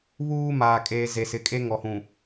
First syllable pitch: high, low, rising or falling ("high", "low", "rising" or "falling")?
high